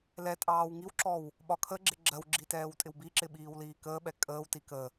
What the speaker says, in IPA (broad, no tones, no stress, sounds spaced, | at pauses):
l ɛ tʼ ɑː w ŋ i w ǁ ɔ w | ɓ ɒ kʰ ə ɡ͡ǁ ɪ ɡ͡ǁ ɜ w ɡ͡ǁ i t ɛː w tʼ ɪ w b i ǁ ɪ ɓ iː w l iː k əː ɓ ɛ kʼ əː w t i k ə